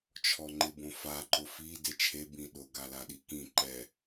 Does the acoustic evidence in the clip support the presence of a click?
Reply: yes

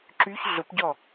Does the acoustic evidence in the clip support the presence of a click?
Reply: yes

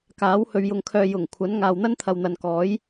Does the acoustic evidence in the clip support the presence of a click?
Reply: no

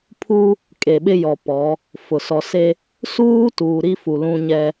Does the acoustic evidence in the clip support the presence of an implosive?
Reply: yes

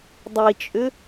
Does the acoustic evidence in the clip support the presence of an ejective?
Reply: yes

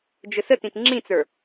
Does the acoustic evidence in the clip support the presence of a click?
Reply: yes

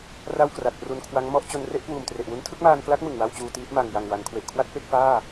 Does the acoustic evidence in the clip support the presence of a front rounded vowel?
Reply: no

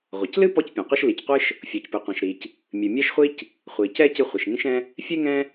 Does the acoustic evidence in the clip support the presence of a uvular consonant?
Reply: yes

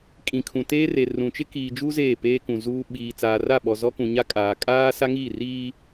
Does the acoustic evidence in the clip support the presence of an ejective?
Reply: yes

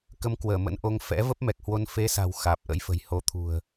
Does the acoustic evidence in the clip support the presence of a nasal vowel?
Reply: no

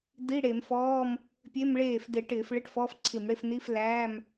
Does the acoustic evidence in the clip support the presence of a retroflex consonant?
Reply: yes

